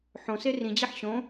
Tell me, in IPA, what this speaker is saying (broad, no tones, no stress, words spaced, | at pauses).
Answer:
ħõse rĩd͡ʑeħ ɕõ